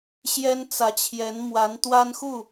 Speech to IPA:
ɕ j ɛ˥ n t͡s ä˧˥ t͡ɕʰ j ɛ˧˥ n m w a˧˥ n t̪ w a˥ n x u˥˩

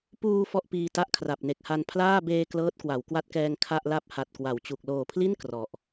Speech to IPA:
p uː˧ f ɔ˥˩ ʔ p iː˧ t a˥˩ ʔ kʰ r a˨˩ p̚ n e˨˩ k̚ h a˧ n pʰ l aː˥˩ b eː˧ k l ɤː˦˥ t̚ k w a˩˦ w k w a˦˥ t̚ k ɛː˧ ŋ kʰ a˥˩ ʔ l a˥˩ p̚ h a˨˩ t̚ k w a˩˦ w t͡ɕ u˨˩ k̚ l oː˨˩ pʰ l i˥˩ n k r ɔ˨˩ ʔ

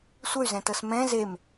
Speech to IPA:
sʷ ə y̯ z ɛ̃ t ɤ s m ɛ̃ z e m

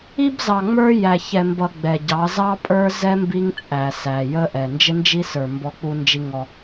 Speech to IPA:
i˦ b z ɑ˨ ŋ͡m ə˞˦ j æ˨ ç ɛ˨ m b ʌ˨ ɡ͡b ɛ˨ ɟ ɑ˨˦ z ɑ˦ pʼ ə˞˦ z ɛ˦ m b i˦ ŋ t͡sʼ æ˨ s æ˨ j ə˦ ʔ ɛ˨ n d͡ʒ ɪ˦ n d͡ʒ i˦ s ə˞˨ m b ɔ˦ k͡p u˦ n d͡ʒ i˦ ŋ ɔ˦

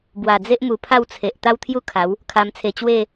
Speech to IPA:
b w a˨˩ d͡z e˦ ʔ m u˨˩ pʰ a˥˧ w t͡sʰ e˨ ʔ t̪ a˦ w t̪ʰ j u˥˧ kʰ a˨˦ w | kʰ a˧ m t͡sʰ e˧ t͡ɕ w e˥˧

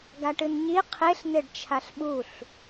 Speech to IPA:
ɡ a ʈ ɨ n ɲ i qʰ e ɬ n̪ e ɖ t͡ʃʰ a ɬ ɓ u ɬ

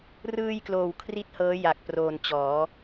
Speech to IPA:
r ɯː˧ j k l oː˨˩ w kʰ r i˥˩ t̚ h ɤː˦˥ j a˨˩ k̚ p r oː˨˩ n t͡ɕ ɔː˩˦

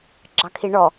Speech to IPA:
ɡ͡ǁ ɑ kʰ i ɳ ɔ

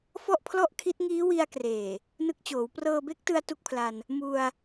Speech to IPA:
f ɔ˥˩ ʔ pʰ l ɔ˥˩ ʔ kʰ i˦˥ t̚ ŋ iː˦˥ w i˧ a̯ k r eː˨˩ | n ɯ˦˥ k̚ t͡ɕ oː˩˦ w p r ɤː˧ b e˦˥ k̚ t ɯ˧ a̯ t u˥˩ k̚ pʰ l a˧ n | m u˧ a̯

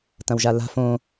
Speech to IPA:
t ɐ̃ w ʒ a l a̤ f õ

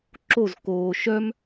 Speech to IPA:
ǁ o z k oː ʃ œ m

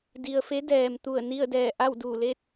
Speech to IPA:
d i˩ ə̯ f e˧˥ d ɛː˩ m t̪ u˧˩ ə̯ n i˥˨ ə̯ d ɛː˧˩ ʔ a˥˨ w d u˧˩ l e˥˨ t̚

